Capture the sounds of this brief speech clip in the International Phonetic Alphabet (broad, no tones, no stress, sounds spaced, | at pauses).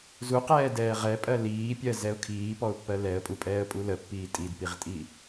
z u q ɛː d ɛː ʁ ɛ pʼ ɜ l iː pʲ ɜ z ɛ ʊ̯ kʰ iː p ɔ ʊ̯ pː ɜ l ɛ ə̯ pʼ u pʼ ɛː ə̯ pʼ u l ə pː iː tʼ i d p i ʁ tʼ i